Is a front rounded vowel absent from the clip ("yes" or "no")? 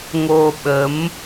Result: yes